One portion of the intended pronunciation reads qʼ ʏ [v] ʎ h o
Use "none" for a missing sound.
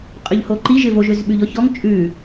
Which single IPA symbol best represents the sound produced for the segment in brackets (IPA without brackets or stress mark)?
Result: none